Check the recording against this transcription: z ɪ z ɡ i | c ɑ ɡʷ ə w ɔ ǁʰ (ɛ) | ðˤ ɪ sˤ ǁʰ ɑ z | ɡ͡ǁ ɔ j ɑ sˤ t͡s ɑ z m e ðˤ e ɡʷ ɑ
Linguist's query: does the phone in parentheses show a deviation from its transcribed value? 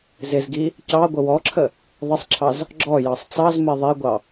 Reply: yes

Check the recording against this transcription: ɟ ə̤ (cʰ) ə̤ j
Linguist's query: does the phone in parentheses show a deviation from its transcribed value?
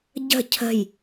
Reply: no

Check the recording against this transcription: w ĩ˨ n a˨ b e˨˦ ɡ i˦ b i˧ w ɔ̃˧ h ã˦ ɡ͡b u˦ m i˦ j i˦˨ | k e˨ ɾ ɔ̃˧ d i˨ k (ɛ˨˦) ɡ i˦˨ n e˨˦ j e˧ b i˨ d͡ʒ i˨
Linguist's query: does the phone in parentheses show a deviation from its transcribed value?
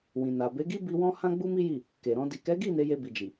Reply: no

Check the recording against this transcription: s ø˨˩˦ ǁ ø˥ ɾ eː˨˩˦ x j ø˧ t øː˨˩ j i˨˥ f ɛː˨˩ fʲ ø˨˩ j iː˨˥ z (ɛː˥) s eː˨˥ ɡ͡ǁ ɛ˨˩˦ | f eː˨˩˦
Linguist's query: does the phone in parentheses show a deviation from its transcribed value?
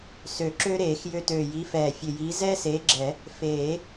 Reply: no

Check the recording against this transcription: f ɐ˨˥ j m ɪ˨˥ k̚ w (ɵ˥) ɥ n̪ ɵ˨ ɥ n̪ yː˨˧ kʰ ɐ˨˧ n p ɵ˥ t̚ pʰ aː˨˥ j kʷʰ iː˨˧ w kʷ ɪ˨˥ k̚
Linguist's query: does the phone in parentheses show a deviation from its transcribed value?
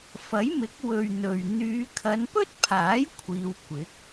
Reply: yes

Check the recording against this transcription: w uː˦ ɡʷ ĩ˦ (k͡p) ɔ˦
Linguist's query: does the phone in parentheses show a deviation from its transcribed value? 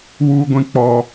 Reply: no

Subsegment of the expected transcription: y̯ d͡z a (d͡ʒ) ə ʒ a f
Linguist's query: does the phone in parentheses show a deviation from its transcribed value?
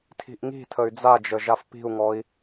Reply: no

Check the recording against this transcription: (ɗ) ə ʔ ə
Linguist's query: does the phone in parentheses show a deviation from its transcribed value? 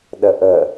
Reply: no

